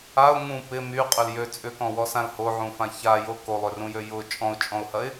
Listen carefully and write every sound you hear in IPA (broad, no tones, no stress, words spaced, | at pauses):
aʊ̯ ŋũ pɪ myqʼʏl jø t͡sʼʏkɔ̃wɔsãl hoʕũfã çajo kolˠørũjø jʊ t͡ʃʼɔ̃ʊ̯t͡ʃʼɔ̃ʊ̯hɐɪ̯